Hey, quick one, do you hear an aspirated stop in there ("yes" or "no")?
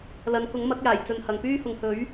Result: no